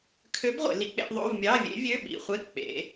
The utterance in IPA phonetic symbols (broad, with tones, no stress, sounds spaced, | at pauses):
kʰ ø˧˥ b ʁʷ ḛ˩˧ l i˧˥ k͡p ḛ˧˥ ʔ ðˤ o̰˧˥˧ v mʲ ɑ˧˥˧ vʲ ḛ˧˥ vʲ ø˧˥˧ ɓ ḭ˧˩˧ χʷ e˧˥˧ k͡p ḛ˩˧